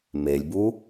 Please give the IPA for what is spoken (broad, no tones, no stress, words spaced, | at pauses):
melʲbu